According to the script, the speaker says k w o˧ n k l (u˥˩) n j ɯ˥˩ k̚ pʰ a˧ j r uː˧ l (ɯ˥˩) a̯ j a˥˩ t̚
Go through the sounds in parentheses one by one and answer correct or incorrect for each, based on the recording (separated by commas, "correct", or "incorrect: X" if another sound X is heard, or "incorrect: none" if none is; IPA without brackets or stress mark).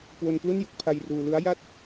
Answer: correct, incorrect: ɯ˦˥